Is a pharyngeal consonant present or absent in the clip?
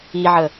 present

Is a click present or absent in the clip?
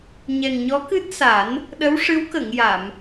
absent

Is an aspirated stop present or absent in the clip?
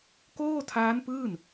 present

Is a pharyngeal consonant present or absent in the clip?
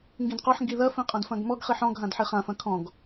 present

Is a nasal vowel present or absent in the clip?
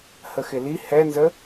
absent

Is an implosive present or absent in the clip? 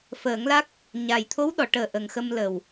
present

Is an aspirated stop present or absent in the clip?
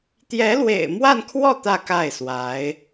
present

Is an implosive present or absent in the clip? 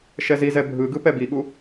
present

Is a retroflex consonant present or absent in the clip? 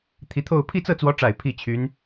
present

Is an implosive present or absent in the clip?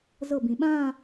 present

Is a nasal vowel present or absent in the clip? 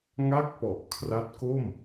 absent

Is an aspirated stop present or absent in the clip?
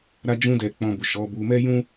absent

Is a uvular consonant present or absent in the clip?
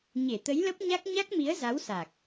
absent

